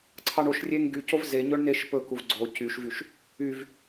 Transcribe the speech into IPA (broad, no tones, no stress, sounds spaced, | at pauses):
ǀʰ ɑ ɳ o ʃ rʲ e ŋ ɡ y c o v z e ɲ ɵ ɳ n e ʃ p ɵ k u v ɡ͡ǀ o c y ʃ v y ʃ | y v